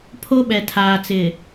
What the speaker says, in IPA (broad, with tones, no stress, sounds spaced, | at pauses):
pʰ o˦ ɓ ɛ˨ tʰ aː˨ t͡s ɪ˨